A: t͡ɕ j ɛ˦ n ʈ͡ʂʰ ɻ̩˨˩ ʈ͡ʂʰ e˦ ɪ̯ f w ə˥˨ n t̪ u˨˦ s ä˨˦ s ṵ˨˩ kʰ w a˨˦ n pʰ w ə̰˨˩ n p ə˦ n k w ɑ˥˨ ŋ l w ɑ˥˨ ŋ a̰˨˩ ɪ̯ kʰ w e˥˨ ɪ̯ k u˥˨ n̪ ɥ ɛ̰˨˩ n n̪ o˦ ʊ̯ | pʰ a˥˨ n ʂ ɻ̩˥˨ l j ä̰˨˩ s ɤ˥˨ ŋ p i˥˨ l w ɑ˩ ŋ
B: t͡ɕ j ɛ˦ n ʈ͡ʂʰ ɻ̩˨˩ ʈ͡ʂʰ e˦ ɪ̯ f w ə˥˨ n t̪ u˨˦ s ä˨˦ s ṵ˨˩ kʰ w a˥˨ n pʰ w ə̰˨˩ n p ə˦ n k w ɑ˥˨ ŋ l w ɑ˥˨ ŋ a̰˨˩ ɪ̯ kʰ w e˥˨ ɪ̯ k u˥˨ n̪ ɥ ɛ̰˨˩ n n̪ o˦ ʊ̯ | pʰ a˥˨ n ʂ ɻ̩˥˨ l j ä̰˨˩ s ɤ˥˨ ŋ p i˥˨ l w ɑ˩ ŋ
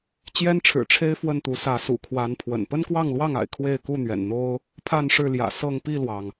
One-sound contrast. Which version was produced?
A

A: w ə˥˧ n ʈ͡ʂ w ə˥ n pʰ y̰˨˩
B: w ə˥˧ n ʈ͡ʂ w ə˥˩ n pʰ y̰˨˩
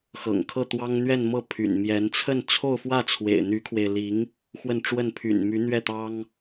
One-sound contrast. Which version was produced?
B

